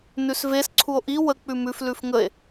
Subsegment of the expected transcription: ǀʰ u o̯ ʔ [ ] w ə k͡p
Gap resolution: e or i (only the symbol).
i